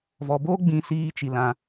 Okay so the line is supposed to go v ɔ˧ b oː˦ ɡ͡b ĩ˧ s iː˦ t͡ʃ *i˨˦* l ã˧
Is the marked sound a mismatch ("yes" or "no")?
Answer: yes